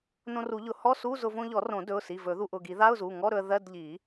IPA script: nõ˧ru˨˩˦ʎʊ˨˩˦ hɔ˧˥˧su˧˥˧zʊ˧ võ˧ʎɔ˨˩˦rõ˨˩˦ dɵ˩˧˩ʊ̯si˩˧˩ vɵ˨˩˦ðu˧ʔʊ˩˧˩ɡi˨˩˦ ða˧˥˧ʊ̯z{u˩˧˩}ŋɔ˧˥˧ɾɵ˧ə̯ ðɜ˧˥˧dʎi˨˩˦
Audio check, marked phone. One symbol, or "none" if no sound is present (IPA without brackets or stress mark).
u˩˧˩